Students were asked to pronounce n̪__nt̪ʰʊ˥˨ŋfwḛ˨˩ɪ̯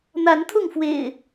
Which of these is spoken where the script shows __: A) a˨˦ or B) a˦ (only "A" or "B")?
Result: A